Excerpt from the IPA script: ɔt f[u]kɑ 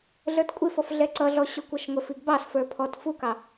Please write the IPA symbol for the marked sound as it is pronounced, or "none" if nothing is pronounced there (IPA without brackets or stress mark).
u